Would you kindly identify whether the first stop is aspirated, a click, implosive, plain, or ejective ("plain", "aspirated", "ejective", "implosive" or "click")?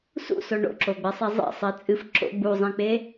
click